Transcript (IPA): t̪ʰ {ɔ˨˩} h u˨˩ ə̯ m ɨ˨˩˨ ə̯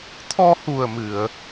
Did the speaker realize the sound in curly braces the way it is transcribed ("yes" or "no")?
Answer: no